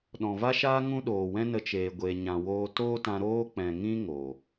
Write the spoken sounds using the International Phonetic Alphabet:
ɗ ɔ̃˨ v a˦ ʃ aː˦ ŋ ũ˦ ɗ oː˨ w ɛ̃˦ n ə˧ t͡ʃ eː˧ ɡʷ eː˧ ɲ ã˨ w oː˧ t oː˦ t ã˧ ɾ oː˦ k͡p ɛ̃˨ ŋ ĩ˦ ŋ oː˨

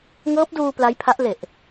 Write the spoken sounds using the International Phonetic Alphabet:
ŋ ɤː˦˥ p̚ d uː˧ p l a˦˥ j pʰ a˦˥ ʔ l e˨˩ ʔ

